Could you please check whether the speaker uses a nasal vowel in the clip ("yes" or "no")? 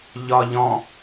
yes